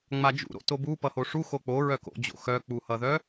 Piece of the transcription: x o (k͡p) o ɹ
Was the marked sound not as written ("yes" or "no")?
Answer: no